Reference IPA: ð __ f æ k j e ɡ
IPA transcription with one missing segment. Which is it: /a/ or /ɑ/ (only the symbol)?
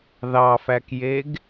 ɑ